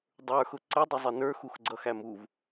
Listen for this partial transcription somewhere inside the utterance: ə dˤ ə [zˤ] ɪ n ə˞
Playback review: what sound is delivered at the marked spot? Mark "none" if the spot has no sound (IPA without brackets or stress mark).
zˤ